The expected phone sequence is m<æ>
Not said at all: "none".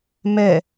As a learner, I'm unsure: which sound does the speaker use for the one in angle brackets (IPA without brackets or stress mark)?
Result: ɛ